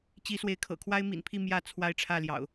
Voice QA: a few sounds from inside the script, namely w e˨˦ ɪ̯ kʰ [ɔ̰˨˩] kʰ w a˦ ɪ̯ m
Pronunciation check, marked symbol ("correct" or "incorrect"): incorrect